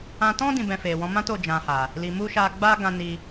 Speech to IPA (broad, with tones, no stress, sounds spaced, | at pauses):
ã˧ t ɔ̃˦ d ĩ˧ b ɛ̃˧ f e˨ w ɔ̃˨˦ m ã˦ t o˦˨ d͡ʒ ã˧ h a˨ | l i˧ m u˦ ʃ a˧ ɡ͡b a˦ ɡ ã˧ n i˧